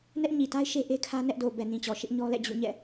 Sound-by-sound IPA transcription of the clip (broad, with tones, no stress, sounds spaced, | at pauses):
n ɛ˦ ʔ ɲ i˨ t a˦ ɪ̯ ʃ e˦ ʔ e˦ kʰ ä˦ n ɛ˦ ʔ d o˨ b ɛ˨ n ĩ˨ t͡ɕ ɔ˨ ʃ ɪ˦ ʔ ɲ ɔ˦ l ɛ̰˦˨ d͡ʑ ṵ˦˨ ɲ ɛ̰˦˨